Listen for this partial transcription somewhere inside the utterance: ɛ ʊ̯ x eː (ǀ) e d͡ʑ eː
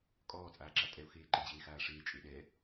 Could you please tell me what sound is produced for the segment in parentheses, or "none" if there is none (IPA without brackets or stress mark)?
ǃ